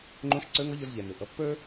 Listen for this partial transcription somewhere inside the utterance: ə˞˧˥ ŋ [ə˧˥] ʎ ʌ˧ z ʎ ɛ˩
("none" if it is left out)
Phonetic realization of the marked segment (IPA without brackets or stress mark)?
ʌ˧˥